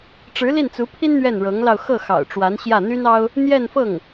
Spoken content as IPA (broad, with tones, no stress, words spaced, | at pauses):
ʈ͡ʂɻ̩˧˥li˥˩nt͡su˧˥pʰi˥n n̪ɥɛ˥˩nɻɤ˧˥ŋlɑ˧ʊ̯ xɤ˥˩ xɑ̰˨˩ʊ̯ʈ͡ʂwa˧˥nɕjä˥˩ n̪y˥nɑ˥ʊ̯ | n̪jɛ˥˧nfɤ˥˩ŋ